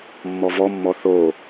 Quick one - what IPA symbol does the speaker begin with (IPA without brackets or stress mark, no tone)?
mː